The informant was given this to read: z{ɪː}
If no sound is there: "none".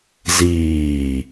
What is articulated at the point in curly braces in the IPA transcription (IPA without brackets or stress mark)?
iː